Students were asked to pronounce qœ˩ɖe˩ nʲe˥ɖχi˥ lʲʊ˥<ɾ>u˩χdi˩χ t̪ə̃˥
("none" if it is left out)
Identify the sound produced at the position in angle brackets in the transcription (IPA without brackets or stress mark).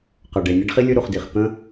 ɾ